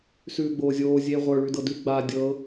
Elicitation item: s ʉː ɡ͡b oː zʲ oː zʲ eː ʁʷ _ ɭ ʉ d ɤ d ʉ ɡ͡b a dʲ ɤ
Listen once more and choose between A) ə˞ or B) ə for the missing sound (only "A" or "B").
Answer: A